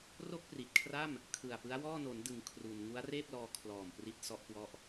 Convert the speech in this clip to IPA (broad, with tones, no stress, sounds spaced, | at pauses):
r o˥˩ k̚ p r i˨˩ t̚ kʰ r a˥˩ m | kʰ ɯ˨˩ a̯ p ɯ˦˥ a̯ w ɔː˥˩ n o˩˦ n d ɯ˩˦ ŋ kʰ r u˧ n ŋ u˦˥ a̯ r eː˥˩ p̚ l ɔː˧ kʰ l ɔː˨˩ m p r i˥˩ t̚ s ɔ˥˩ ʔ k w ɔ˥˩ ʔ